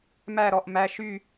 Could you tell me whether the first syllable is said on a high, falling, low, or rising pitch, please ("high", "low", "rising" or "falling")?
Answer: falling